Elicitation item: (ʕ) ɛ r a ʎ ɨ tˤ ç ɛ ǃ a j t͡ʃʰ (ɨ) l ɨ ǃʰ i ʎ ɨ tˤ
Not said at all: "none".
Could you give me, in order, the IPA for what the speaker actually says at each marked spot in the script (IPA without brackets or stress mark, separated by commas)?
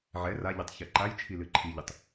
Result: ʕ, i